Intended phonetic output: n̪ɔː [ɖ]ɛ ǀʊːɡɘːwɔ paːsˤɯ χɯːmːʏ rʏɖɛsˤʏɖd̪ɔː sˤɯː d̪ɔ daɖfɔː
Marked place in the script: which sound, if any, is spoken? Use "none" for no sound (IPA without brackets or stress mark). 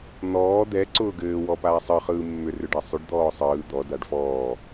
d̪